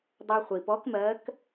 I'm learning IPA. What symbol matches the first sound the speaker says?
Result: dˤ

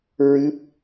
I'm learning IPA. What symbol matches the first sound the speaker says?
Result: ɹ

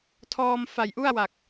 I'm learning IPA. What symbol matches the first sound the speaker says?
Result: tʰ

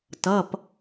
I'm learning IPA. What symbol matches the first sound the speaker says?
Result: t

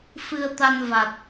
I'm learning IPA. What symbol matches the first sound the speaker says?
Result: f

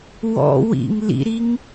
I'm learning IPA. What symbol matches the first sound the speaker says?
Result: w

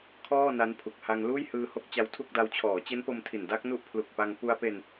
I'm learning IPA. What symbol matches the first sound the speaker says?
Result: kʰ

